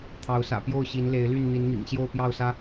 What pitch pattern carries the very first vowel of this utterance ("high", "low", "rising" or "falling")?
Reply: rising